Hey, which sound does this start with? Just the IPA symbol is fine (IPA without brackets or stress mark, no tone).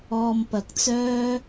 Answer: ɔː